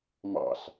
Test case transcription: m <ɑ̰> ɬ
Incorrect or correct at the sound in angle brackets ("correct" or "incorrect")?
correct